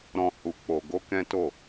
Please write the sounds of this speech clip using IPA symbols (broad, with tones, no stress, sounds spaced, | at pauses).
ɾ ɔ̃˧ h u˧ k͡p o˧ ɡ o˦ k ɛ̃˦ t o˦˨